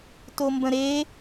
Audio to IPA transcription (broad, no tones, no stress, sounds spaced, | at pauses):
t o m b ə̃ ɾ e